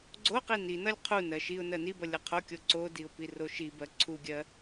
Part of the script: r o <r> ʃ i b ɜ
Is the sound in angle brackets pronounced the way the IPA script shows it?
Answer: no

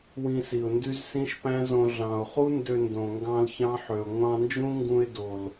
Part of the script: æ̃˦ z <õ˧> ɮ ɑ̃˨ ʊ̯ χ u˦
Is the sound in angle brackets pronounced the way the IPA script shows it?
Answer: yes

